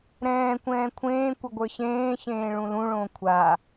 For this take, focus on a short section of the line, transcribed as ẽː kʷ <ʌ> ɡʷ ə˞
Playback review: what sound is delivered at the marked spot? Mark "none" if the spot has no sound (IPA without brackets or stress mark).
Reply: ʌ